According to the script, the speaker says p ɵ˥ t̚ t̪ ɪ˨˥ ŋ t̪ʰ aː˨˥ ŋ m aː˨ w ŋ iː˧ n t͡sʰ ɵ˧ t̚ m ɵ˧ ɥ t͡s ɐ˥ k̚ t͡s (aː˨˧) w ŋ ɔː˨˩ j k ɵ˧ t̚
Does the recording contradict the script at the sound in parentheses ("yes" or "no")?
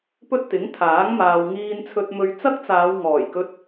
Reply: no